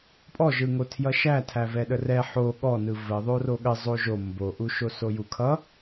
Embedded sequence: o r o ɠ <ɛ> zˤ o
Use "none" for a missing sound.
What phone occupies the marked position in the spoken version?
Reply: ə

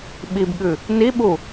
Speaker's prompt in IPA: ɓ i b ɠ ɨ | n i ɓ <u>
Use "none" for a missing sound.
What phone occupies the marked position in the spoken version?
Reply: u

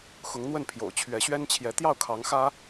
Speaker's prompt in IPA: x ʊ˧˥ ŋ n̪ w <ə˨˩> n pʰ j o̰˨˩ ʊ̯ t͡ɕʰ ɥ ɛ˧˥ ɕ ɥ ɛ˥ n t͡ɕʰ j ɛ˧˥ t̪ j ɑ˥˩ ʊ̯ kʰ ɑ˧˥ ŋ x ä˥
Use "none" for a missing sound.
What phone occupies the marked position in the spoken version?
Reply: ə˥˩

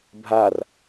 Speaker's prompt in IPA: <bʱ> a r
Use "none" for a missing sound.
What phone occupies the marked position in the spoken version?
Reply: bʱ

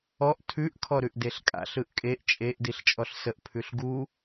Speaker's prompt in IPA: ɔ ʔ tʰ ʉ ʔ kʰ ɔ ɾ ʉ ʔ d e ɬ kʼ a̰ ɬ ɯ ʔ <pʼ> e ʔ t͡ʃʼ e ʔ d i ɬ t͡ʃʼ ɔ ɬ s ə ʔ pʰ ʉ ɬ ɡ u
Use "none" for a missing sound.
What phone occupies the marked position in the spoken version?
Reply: kʼ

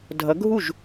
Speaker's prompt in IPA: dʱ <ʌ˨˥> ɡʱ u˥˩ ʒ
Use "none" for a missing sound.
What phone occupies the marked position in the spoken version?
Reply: ʌ˨˥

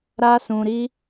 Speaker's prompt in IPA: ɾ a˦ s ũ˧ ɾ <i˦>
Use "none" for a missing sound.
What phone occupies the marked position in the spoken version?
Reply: i˦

